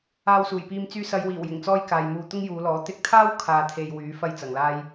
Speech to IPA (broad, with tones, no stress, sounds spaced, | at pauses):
aː˧ w s uː˨˩ j p iː˧ m t͡s yː˧ s ɐ˨˧ j w iː˨˩ w j ɪ˨˩ ŋ t͡s ɔː˥ j k aː˨ j m uː˧ t̪ ʊ˥ ŋ j uː˨˧ l ɔː˨˥ t̪ ɪ˧ k̚ t̪ʰ aː˥ w kʰ aː˧ t̪ʰ e˧ j w yː˨˥ f ɐ˥ j t͡s ɐ˨ ŋ l aː˥ j